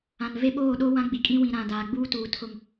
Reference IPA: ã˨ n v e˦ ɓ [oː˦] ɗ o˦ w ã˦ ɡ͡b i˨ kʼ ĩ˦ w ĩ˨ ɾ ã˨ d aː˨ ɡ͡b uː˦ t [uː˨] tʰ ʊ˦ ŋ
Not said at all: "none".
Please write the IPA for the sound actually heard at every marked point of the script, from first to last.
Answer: oː˦˨, uː˨

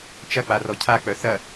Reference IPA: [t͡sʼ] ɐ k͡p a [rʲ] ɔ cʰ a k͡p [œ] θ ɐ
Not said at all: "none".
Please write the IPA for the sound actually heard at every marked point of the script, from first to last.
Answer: t͡ʃ, r, œ

